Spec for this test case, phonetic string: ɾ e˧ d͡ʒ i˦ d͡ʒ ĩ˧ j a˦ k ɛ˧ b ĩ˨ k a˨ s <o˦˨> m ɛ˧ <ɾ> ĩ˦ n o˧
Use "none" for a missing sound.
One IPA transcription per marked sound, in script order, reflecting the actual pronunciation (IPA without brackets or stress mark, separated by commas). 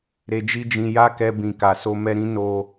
o˧, ɾ